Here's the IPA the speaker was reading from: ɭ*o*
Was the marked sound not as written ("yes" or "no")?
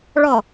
yes